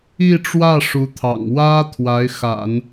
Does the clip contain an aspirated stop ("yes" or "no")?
yes